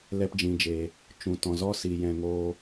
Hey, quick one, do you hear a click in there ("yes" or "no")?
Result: no